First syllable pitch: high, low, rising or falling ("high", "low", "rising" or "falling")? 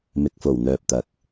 low